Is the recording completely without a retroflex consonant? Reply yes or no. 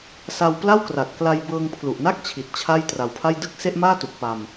yes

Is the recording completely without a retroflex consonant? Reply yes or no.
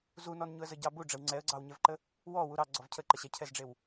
no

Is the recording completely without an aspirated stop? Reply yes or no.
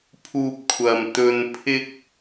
no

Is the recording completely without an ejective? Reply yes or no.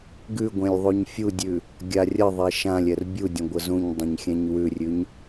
yes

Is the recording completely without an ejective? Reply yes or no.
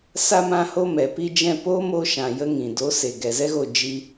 yes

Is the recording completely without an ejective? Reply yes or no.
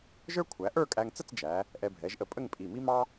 no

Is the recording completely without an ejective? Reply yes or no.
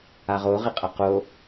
no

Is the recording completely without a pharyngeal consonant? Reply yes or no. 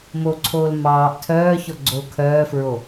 yes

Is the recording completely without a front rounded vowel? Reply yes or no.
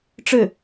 yes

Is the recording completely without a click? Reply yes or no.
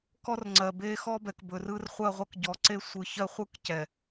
no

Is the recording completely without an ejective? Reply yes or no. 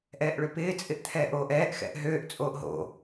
no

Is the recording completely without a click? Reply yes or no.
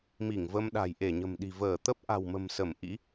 yes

